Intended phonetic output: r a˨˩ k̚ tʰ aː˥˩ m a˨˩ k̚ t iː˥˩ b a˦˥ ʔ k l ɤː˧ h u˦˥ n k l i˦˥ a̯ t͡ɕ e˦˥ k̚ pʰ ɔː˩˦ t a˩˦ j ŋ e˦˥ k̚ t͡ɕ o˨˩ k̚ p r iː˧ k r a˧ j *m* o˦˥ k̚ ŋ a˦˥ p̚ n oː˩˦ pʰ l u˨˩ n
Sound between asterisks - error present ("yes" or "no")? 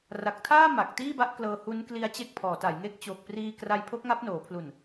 yes